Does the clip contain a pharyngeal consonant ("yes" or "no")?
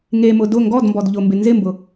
no